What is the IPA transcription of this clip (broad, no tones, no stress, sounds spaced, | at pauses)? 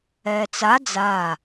ɛː t͡s a d͡z a